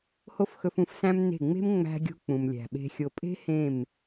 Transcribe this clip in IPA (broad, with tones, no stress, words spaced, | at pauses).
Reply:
ho˧fxɵ˨fũ˨fsæ̃˧m ne̤˦˨ ŋ͡me̤˦m ŋ͡mæ̤˧ɡʲo̤˧ k͡pũ˨mlʲæ̤˨ɓe̤˧ xʲo˨pʼe̤˦ hẽ˦˨m